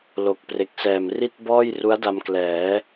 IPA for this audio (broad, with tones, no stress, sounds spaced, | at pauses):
l o˨˩ k̚ p r e˨˩ k̚ s ɛː˨˩ m r i˥˩ t̚ b ɔː˥˩ j r u˦˥ a̯ d a˧ m k l ɛː˩˦